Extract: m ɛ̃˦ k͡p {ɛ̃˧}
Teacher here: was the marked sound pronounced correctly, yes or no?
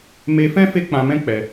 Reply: no